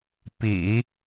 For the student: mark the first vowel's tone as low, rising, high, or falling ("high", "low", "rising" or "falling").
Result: low